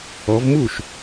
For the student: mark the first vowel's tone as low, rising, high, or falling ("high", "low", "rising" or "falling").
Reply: rising